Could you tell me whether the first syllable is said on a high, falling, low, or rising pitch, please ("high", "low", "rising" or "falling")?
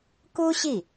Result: high